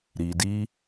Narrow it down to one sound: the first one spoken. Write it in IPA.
ɾ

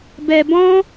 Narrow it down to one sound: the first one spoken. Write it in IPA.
b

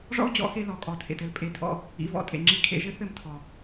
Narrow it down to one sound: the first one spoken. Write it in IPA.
ʐ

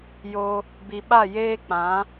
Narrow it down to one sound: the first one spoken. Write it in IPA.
j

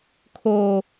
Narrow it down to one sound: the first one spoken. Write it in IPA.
kʰ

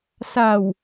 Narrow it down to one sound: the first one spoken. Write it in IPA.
s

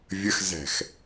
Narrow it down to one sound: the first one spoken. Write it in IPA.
vʲ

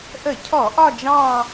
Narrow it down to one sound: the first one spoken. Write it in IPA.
ʔ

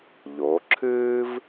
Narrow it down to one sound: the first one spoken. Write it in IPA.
ʎ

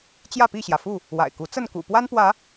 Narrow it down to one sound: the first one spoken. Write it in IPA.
t͡ɕ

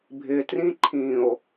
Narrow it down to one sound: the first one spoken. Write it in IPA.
bʱ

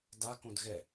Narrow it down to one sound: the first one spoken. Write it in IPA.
d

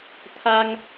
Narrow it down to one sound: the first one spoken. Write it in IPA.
t̪ʰ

